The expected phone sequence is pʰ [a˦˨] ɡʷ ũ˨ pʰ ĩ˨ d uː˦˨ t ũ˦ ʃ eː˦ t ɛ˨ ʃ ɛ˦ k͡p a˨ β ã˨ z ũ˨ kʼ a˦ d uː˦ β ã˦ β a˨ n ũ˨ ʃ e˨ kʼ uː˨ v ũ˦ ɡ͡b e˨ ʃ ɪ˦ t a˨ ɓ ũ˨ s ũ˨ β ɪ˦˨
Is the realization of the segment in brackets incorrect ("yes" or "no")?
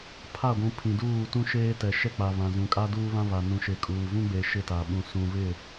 no